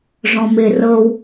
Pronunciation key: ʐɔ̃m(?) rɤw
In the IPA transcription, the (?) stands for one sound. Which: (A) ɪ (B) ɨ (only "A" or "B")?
A